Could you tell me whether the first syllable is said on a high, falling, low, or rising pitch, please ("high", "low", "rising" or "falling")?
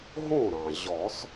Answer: falling